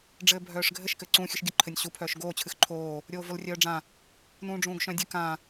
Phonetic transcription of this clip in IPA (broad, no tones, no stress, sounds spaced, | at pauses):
ɖ͡ʐ ɘː bʱ œː ʂ ɡʱ ɘ ʃ k ɘː ǀ ũ xʲ ɨ ʃ ɡʲ ə ǃʰ ɘ nʲ ɕ u pʰ œː ʃ ɡ oː t͡ɕʰ ɨ x ǃʰ oː | ɾʲ oː v o l rʲ œː ɖ͡ʐ ã | n ũː ɖ͡ʐ ũː ɡ ʃ œ̃ dʲ ɨ k ã